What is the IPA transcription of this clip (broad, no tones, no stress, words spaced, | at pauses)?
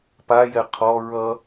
pajɛ qʰɔ ɹʌ